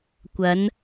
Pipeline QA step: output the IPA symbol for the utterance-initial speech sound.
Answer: kʷ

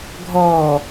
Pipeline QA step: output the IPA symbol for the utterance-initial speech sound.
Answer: ɡʱ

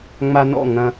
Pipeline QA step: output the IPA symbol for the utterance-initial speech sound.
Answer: ŋ͡m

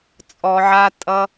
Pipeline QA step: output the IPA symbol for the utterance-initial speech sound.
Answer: t͡sʼ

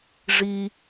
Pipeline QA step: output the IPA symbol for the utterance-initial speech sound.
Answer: ʐ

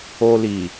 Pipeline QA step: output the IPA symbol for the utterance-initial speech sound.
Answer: o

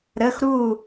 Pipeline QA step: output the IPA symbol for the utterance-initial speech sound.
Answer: ɾ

